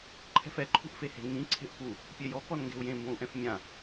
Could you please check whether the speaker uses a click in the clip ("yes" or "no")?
yes